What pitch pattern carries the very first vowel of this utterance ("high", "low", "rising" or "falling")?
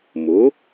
rising